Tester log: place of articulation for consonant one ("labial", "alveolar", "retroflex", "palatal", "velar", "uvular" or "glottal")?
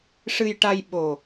retroflex